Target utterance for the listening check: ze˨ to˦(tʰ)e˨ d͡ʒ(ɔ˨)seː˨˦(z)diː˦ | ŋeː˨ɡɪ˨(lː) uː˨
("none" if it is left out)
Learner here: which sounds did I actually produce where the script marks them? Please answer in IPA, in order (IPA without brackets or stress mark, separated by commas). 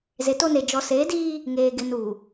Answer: n, ɔ˨, none, n